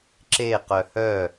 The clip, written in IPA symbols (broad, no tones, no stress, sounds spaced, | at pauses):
ǁ e q œ h œ